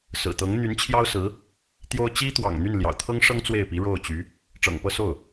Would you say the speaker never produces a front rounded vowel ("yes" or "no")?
no